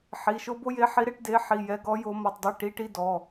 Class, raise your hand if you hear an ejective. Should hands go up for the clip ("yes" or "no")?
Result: no